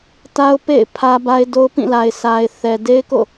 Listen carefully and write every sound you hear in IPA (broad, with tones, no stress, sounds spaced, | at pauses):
t a˦ ʊ̯ p ḛ˦˨ ɪ̯ pʰ ä˦ b a˦ ɪ̯ d o˦ ʊ̯ p ĩ˦˨ l a˨ ɪ̯ s a˨ ɪ̯ θ ɛ˨ d e˦ ɪ̯ k o̰˦˨